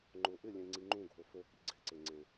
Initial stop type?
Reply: click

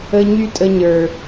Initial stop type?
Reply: ejective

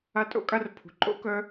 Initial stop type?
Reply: ejective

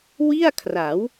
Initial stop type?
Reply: aspirated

